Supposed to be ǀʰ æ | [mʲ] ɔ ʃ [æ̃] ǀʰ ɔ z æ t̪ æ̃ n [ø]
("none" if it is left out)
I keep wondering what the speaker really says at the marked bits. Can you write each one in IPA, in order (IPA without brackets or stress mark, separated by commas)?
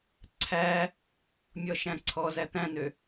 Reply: mʲ, æ̃, ø